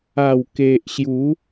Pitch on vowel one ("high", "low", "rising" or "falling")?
low